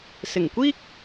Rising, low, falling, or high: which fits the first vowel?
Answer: low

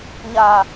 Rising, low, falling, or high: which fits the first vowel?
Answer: low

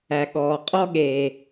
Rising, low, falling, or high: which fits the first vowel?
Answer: low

